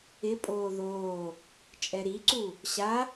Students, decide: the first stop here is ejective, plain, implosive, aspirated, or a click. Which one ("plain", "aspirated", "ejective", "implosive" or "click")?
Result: ejective